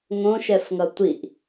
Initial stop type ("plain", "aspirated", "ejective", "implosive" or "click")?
plain